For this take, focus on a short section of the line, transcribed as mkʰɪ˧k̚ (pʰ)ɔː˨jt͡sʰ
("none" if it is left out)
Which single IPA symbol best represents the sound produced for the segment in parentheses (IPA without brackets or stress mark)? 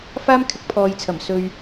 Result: pʰ